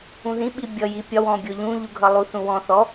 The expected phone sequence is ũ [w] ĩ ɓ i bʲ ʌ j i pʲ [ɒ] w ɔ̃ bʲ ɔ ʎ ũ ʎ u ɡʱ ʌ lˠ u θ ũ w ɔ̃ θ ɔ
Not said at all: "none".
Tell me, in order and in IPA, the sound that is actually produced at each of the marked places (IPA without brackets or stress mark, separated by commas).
ð, ɒ